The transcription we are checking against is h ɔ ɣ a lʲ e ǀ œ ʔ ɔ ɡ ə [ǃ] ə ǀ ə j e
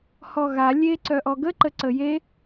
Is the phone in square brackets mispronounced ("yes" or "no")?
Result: no